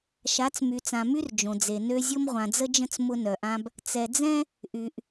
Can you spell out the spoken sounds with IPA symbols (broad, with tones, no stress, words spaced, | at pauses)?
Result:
ʃa˨˦t͡smy˨t͡sã˨my˦r d͡ʒõ˨d͡ze˨nø˦ zʲʊ˦mʁʷã˨d͡zə˦d͡ʒə̃˦t͡s mʊ˦nœ˨ʔã˦b | t͡sɛ˨d͡zɛ̃˦ | ʔy˨ʔ